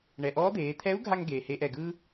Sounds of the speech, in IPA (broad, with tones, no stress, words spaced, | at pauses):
ɳɛ˩ʔɔː˧˥d̪eː˩˧ t̪ʰɛ˧˥u̯ɡʱa˧ŋɡeː˩ heː˧ʔɛ˩ɡɯː˥